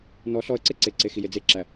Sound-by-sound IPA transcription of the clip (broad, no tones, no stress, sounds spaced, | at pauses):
n ɔ ɬ ɔ ə̯ ǀ e ǀ e ǀ e x i j e d͡z e ǁ æ